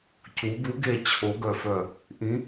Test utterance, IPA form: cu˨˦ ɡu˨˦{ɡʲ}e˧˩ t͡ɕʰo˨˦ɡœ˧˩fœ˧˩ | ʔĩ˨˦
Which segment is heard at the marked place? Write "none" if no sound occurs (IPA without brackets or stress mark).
ɡ